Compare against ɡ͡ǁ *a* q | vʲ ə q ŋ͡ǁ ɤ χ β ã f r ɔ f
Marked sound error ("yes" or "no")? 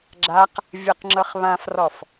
no